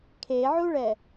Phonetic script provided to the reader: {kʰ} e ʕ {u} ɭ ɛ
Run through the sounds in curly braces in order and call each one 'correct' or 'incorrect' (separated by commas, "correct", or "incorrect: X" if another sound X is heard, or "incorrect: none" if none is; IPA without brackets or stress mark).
correct, correct